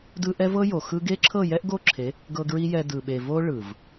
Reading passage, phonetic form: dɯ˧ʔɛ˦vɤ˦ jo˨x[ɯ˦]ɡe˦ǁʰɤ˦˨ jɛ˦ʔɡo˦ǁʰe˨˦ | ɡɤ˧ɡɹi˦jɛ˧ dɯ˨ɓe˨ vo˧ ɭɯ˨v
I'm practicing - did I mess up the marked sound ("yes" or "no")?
yes